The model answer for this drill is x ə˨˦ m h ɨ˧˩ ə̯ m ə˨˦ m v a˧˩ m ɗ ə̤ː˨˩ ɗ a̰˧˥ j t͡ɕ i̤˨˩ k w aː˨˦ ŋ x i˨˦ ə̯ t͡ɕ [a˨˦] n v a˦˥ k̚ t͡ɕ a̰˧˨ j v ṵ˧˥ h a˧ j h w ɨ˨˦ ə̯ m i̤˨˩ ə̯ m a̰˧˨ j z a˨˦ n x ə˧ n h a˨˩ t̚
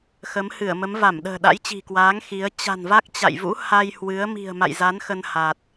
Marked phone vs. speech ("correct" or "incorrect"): incorrect